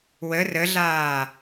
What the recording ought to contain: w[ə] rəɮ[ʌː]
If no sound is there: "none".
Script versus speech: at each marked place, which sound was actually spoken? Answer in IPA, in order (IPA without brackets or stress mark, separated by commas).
ə, aː